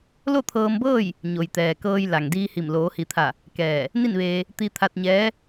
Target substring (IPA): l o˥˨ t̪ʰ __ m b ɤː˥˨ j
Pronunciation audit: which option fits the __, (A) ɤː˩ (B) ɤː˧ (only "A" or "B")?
B